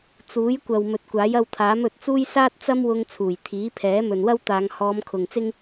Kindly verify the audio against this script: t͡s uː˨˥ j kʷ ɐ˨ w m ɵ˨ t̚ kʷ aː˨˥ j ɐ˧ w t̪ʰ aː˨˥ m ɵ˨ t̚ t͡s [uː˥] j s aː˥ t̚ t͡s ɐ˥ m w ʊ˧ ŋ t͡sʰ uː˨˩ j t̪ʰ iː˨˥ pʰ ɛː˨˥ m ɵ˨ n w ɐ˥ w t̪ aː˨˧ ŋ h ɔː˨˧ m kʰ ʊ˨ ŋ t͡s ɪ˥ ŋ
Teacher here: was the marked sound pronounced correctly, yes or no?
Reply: yes